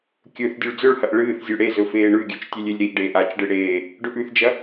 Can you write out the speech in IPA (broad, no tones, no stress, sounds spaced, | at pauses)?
kʲ ɵ θ dʲ ʉ ɭ d͡z ɵ ɭ h ɐ ʔ ɭ ɨː θ zʲ ʉ ɽ e z ɵ f eː ɳ ʉ ɡʲ ʉ t͡ʃ tʲ e lʲ e lʲ ɾ i ʔ ɖ eː ʔ a t͡ʃ ɖ ɨ ɽ eː | ɖ ɵ ʔ ʉ θ d͡ʒ ɐ